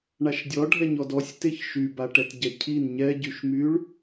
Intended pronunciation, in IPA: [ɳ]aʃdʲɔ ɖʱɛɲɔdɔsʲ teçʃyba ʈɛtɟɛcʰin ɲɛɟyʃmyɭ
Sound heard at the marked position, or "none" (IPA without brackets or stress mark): ɳ